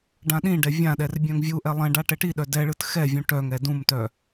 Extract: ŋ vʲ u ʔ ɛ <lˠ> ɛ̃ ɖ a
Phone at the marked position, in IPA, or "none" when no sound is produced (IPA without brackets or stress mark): lˠ